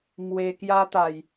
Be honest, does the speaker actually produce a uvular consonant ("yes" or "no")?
no